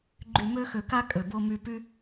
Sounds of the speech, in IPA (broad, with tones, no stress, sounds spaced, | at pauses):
ɡ͡ǃ y˨ m ø˧ x ø˨ k a˧ kʼ ø˨ b o˧ m y˧ p y˦